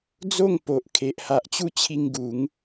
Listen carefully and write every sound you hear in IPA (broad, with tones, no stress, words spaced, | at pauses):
d͡zo˥˧ŋ po˨ʔ kʰe˨ʔha˨ʔt͡ɕu˥˧ t͡ɕʰi˧ŋ ɡu˨˦ŋ